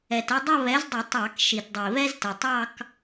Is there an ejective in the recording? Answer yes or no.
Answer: no